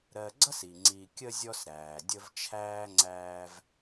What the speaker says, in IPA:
ɾɜ˨ɡ͡ǀʌ˥si˩ ŋ͡ǀi˨kʲə˦ zʲɔ˦sɾæː˩ dʲə˦vt͡ʃʰæː˥ ŋ͡ǀæː˦v

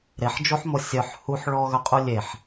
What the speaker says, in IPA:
ɾeħd͡ʒoħmo sʲœħ huħ ɭɔɣœqʼu lʲeħ

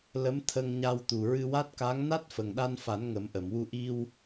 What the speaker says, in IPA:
lə˧˥mt̪ʰə˧ŋɲa˧w t̪u˨˩ɹɨ˧wa˦˥t̚ka˧˥ŋ na˦˥t̚fə˨˩ŋɗa˧nfa˨˩˦n ŋə˨˩˦mʔə˨˩˨mwu˧ ʔi˧w

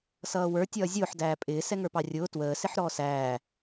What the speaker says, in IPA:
sʌːwə˞ tʲʌːzʲʊːħ dæːpʼɪː sɛŋə˞pɑrʲʊː twəː sɪħɾɔːsæː

